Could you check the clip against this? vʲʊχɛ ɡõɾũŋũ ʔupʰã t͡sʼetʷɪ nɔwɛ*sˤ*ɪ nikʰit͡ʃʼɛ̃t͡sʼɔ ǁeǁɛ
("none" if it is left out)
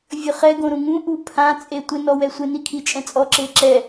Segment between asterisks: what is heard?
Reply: sʷ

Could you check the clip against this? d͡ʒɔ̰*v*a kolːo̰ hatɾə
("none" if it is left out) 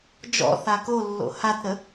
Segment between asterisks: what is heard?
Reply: θ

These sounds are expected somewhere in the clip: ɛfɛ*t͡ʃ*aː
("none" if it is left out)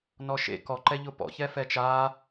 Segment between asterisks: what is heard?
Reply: t͡ʃ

